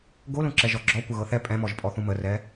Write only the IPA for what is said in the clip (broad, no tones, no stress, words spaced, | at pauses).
ɡolũǁɛ ʒɔɡ͡ǁɔ kʷəɣɤθɛ pʼɛ̃mɔʒpʼɔ θũmərɛ